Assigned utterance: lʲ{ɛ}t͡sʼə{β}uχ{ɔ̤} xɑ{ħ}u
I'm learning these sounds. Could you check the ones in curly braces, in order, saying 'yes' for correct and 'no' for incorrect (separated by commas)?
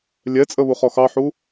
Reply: yes, yes, no, yes